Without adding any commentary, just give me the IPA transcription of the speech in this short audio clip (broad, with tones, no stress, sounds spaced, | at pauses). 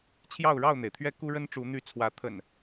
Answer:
t͡ɕʰ j ɑ˥˨ ʊ̯ ɻ ɑ˥˨ ʊ̯ n̪ e˩ ɪ̯ t̪ʰ ɥ ɛ˦ k u˦ ɻ ə˦ n ʈ͡ʂ u˨˦ n̪ y˨˦ t͡sʰ w ä˨˦ t̪ʰ ə̰˨˩ n